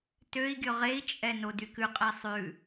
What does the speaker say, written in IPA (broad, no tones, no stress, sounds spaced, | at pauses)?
t ø i̯ ɡʲ ɵ ʁ e i̯ t͡ʃʼ ɛ n o d y k ʉ qʼ ɛ sˤ ʉ